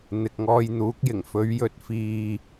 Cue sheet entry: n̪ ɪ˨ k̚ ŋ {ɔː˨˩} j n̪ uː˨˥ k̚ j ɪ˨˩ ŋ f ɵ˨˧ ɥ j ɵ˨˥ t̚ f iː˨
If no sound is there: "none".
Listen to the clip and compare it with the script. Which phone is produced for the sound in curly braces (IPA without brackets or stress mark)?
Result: ɔː˧